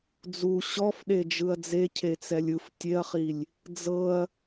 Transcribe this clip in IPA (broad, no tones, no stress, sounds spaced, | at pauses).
d͡z u ɕ ɔ f ɗ e d͡ʒ ɯ ɐ̯ d͡z e cʰ e t͡s ɛ lʲ ɯ f tʲ e ɐ̯ χ i lʲ | d͡z ɤ ɐ̯